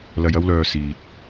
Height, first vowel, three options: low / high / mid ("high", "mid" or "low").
low